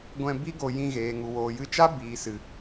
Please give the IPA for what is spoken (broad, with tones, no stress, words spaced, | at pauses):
ɡʷɛ̃˧ bi˦ɡo˧ jĩ˧ɣeː˨ ŋu˨woː˨jɨ˧t͡ʃa˦ biː˨sɨ˨